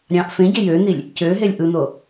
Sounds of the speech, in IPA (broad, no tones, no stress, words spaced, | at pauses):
ɾʲɑ̃ʔ fẽɟe jøn̪ilʲ | cøɦelʲ ʔɯn̪o